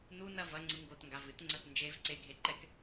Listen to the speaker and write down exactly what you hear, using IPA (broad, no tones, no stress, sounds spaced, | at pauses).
n u n ɐ v ɐ ŋ͡ǀ ɨ ŋ ɡ o t ŋ ɡ a v ɨ t ŋ͡ǀ ɐ t n d͡ʒ e v ǀ e ɡʱ e ǃ ɛ k